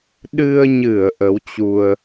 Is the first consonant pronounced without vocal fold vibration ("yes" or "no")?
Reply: no